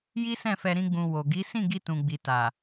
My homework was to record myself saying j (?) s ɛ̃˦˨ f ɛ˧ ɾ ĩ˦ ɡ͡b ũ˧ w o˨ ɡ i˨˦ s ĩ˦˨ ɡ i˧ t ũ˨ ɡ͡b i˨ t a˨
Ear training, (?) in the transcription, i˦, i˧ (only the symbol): i˦